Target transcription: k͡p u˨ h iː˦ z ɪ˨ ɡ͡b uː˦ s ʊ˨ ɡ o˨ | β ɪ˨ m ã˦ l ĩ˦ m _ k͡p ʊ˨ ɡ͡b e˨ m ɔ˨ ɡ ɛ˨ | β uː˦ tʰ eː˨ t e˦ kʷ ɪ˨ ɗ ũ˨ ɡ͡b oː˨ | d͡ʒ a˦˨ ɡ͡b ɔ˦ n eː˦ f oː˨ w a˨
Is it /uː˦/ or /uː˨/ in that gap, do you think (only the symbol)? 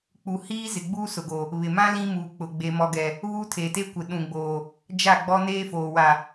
uː˨